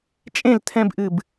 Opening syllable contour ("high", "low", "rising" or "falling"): falling